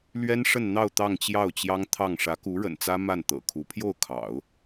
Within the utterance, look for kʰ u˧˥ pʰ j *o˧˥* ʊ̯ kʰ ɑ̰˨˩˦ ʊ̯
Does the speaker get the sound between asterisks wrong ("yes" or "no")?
yes